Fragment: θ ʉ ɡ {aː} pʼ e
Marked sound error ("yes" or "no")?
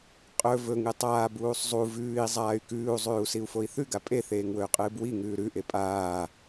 yes